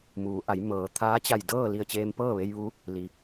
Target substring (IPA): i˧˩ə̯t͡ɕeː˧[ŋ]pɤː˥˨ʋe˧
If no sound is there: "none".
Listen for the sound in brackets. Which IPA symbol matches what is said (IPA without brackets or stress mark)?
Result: m